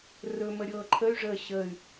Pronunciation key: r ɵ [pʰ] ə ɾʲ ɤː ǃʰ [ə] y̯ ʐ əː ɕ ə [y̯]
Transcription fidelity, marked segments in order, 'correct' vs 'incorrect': incorrect, correct, correct

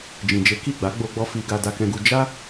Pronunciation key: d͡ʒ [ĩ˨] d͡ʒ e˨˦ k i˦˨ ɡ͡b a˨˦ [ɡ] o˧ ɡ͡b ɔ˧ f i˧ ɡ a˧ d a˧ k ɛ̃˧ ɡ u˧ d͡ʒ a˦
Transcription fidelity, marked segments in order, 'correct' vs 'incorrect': correct, incorrect

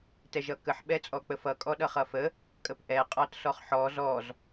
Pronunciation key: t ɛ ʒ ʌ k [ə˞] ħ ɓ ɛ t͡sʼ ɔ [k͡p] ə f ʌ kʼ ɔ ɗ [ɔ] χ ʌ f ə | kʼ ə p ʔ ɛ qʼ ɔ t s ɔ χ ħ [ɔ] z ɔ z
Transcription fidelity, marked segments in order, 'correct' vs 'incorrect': incorrect, correct, incorrect, correct

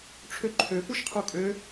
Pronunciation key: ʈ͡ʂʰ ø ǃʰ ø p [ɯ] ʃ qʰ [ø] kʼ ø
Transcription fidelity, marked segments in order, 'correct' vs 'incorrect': incorrect, incorrect

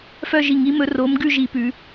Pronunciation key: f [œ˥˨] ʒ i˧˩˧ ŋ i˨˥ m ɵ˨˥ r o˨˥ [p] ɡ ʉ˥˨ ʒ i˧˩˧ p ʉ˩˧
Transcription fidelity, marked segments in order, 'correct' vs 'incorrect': correct, incorrect

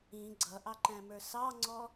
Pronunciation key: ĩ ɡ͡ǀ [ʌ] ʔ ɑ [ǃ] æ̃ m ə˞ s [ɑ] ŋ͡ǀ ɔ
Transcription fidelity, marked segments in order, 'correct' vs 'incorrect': correct, correct, correct

